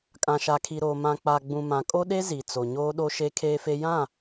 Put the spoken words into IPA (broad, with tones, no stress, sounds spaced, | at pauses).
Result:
kʼ ã˨ ʃ a˨ kʰ i˨ ɾ oː˨ m ã˨ k͡p a˨ ɡ͡b ũ˨ m ã˨ kʼ o˦ ɗ e˦ z i˨ t͡s o˨ ɲ oː˦ ɗ o˦ ʃ e˦ kʰ eː˦ f e˦ j ã˦˨